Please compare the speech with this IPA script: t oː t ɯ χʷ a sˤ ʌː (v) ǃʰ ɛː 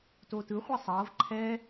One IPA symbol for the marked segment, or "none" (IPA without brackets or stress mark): v